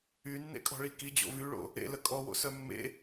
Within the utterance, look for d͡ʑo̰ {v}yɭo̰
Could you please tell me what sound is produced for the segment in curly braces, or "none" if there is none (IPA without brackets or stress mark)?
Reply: v